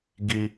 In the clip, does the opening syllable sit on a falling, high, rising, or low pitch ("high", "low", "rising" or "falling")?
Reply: high